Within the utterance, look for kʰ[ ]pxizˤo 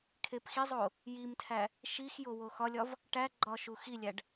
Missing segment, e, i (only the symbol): e